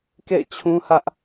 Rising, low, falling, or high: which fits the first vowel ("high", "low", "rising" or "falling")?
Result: falling